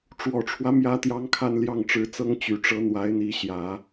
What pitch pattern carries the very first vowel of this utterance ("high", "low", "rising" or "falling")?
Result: low